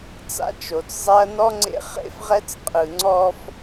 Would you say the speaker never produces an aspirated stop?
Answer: yes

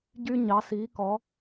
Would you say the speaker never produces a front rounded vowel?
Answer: no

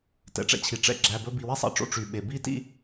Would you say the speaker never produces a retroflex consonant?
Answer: no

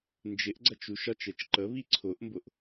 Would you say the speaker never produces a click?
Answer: no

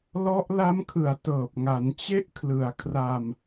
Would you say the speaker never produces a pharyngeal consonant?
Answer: yes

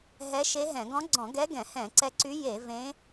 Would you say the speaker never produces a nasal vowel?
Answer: no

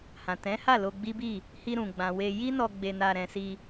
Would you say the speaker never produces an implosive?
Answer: yes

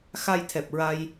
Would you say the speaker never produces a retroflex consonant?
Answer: yes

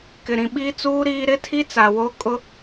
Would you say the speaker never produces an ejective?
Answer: no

